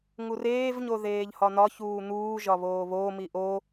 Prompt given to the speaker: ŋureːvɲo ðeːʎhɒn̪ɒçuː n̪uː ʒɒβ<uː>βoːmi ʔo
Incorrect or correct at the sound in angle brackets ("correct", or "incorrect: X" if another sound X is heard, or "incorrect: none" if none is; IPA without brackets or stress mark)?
incorrect: oː